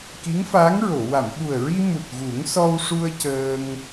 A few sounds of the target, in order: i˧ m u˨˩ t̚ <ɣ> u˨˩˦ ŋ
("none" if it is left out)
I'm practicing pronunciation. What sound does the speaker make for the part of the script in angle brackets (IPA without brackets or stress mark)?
ɣ